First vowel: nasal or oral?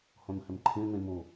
nasal